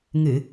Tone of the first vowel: low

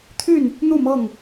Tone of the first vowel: falling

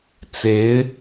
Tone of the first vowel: rising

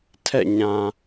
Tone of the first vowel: falling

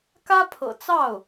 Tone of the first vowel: high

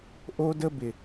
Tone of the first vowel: high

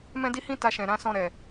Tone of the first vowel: high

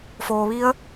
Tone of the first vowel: low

